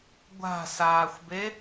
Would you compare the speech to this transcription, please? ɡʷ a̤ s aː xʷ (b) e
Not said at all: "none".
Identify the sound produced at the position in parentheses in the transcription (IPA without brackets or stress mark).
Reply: b